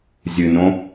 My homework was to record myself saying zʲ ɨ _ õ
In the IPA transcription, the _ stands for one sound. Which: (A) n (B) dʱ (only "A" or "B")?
A